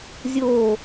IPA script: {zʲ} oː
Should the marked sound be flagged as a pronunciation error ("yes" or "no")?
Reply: no